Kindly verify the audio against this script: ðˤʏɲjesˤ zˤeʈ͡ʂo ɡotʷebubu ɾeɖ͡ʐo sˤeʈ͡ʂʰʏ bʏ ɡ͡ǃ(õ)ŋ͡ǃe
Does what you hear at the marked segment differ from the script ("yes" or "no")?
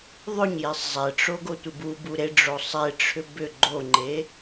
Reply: yes